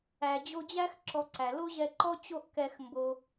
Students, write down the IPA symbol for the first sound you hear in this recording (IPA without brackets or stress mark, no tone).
æ